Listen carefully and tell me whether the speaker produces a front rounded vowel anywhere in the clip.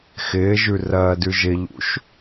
no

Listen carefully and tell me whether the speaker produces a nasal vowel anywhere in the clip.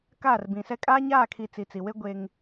yes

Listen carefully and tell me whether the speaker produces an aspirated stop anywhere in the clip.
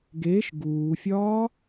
no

